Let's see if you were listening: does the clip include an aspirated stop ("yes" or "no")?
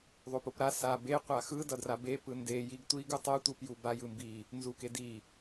no